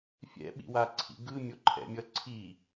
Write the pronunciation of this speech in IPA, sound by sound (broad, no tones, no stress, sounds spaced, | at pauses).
fʲ ɛ̰ ɓ ḭ w a ǀʰ ḭ ɡ ɯ mʲ o ǃʰ ɛ̰ mʲ ʌ ǀʰ i